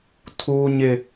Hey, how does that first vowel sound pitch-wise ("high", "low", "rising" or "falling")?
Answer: high